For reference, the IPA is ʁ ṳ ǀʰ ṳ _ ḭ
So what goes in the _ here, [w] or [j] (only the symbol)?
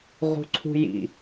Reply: j